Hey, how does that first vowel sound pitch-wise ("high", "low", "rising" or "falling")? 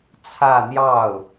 falling